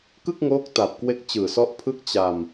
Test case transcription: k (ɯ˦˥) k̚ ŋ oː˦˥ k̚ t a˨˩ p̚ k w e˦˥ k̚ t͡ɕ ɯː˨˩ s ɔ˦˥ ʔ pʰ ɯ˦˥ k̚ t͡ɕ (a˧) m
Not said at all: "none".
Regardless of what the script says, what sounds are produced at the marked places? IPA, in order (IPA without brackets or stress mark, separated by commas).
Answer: ɯ˥˩, a˧